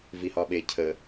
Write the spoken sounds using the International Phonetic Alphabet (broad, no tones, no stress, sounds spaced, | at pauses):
v i h ɒ ɓ e cʰ ə